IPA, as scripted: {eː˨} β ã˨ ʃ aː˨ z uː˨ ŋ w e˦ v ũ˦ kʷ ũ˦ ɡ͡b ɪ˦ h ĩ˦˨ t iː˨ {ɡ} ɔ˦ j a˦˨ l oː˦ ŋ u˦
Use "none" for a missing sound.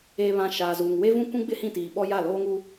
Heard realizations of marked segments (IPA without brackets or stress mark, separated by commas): eː˨, ɓ